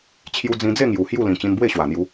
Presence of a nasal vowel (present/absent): present